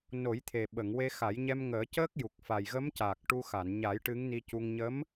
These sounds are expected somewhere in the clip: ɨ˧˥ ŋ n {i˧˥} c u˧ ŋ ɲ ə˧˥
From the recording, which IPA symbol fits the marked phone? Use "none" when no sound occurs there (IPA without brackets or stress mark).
i˧